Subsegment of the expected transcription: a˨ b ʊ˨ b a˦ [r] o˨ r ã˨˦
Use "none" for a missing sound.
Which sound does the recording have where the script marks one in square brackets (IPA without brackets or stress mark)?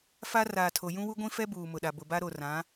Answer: ɾ